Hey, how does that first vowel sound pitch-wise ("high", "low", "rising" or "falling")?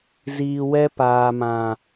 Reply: low